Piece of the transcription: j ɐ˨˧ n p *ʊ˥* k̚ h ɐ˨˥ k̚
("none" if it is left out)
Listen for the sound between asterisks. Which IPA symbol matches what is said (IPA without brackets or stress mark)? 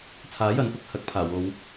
ʊ˥